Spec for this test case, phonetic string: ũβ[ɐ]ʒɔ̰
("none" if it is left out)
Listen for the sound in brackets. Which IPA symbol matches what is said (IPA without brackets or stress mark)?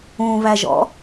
æ